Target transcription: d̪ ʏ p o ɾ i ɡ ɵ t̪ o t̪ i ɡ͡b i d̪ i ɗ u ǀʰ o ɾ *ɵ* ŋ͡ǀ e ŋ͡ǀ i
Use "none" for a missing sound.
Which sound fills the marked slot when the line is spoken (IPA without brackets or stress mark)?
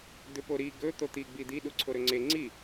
ɵ